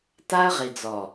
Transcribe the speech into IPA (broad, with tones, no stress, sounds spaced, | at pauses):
t a˦ ə̯ ʁ i˨ d͡z ɔ˨